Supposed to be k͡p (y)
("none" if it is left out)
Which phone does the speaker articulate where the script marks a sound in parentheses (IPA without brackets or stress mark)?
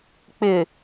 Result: ɪ